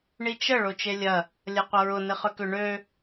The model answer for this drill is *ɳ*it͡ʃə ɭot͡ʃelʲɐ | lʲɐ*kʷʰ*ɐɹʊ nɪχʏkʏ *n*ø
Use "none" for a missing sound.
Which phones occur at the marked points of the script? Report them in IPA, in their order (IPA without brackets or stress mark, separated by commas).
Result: ɳ, qʷ, ɳ